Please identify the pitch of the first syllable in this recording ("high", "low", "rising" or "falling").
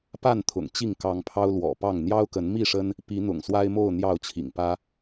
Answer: falling